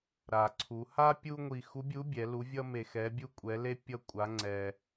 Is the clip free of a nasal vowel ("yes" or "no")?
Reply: yes